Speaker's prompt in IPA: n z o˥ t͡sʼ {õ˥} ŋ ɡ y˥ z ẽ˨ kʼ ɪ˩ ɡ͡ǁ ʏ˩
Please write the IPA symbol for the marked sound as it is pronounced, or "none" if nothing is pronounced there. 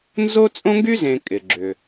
õ˥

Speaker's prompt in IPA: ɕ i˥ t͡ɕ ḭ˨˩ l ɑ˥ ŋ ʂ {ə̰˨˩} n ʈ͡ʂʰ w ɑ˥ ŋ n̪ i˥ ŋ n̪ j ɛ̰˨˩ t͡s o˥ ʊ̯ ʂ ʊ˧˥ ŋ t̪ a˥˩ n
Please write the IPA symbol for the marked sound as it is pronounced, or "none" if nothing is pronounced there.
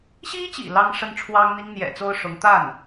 ə˥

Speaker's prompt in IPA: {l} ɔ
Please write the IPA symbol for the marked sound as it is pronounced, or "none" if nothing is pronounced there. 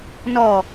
n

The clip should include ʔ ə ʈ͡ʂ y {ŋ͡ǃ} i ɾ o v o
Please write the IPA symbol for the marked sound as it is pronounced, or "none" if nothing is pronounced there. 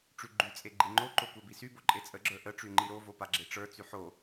ŋ͡ǃ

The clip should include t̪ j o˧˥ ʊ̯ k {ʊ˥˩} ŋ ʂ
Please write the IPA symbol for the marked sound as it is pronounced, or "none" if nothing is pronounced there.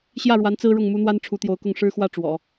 ʊ˥˩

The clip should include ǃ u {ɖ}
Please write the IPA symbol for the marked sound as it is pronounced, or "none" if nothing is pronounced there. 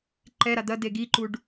ɖ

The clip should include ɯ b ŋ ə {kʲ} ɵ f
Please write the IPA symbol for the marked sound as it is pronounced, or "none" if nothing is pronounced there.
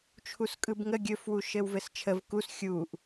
ɡʲ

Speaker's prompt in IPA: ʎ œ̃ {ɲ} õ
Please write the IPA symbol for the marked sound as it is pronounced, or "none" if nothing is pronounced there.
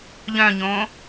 ɲ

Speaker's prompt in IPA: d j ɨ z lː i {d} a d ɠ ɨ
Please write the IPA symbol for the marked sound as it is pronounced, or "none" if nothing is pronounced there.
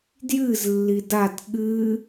d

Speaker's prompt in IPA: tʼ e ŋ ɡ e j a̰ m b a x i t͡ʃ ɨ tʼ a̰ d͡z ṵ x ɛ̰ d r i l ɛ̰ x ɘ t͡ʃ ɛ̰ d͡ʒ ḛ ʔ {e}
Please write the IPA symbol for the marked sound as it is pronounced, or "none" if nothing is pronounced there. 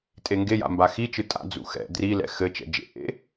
ḛ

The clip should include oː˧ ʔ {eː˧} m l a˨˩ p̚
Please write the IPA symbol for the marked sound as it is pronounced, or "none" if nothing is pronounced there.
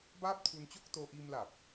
iː˧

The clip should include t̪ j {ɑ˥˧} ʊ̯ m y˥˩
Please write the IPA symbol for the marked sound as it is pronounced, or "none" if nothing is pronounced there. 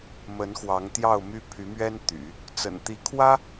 ɑ˥˧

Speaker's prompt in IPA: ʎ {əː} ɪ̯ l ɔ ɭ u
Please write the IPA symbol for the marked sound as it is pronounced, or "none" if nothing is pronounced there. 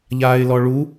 aː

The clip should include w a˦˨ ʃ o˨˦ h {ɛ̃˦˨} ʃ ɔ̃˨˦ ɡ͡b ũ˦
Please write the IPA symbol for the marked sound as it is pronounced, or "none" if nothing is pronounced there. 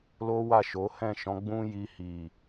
ɛ̃˦˨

